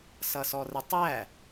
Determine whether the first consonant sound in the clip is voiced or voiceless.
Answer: voiceless